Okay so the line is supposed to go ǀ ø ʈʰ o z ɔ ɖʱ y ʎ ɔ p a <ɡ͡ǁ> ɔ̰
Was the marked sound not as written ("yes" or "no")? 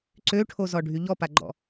yes